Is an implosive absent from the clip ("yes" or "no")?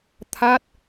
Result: yes